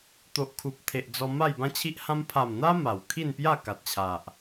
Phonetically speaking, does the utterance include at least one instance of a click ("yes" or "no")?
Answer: no